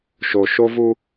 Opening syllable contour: low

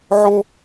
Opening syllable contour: high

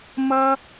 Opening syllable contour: high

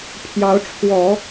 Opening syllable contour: rising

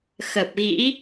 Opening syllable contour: low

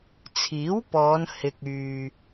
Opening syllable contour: rising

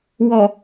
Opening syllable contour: low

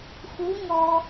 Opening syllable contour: rising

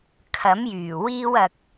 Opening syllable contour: rising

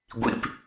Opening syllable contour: high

